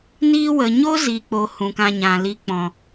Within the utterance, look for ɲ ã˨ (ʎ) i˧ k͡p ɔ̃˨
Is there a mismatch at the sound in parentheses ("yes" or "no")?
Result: yes